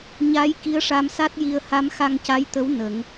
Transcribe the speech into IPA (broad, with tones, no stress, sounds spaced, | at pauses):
ɲ a˧˥ j k i˧˥ ə̯ ʂ a˧ m s a˦˥ t̚ j i˧ ə̯ h a˧˥ m x a˧ ŋ c a˧˥ j t̪ ə˧˥ w n ə˨˩˦ ŋ